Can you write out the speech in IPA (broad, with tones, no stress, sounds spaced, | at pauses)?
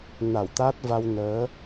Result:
n a˧˩ w t̪ a˦˥ t̚ v a˧ w n əː˨˦